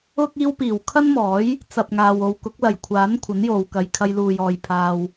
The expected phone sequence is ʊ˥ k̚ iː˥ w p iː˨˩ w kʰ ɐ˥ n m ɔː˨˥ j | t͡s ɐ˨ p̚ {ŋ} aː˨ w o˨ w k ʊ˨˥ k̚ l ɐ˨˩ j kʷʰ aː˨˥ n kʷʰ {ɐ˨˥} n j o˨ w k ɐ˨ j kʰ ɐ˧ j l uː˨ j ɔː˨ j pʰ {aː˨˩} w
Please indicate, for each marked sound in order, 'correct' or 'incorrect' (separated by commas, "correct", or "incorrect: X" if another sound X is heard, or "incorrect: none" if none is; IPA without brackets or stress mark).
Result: correct, correct, incorrect: aː˨